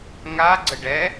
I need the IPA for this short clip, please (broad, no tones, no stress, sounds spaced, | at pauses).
ŋ a ɡ͡ǀ ə ɖ ɛ